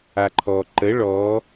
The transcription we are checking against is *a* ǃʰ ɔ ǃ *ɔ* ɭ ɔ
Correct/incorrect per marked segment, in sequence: correct, incorrect

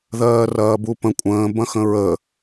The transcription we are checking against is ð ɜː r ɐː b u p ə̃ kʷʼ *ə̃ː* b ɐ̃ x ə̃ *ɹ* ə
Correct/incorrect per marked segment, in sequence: correct, correct

